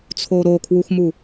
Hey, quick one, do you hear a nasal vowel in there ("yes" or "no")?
no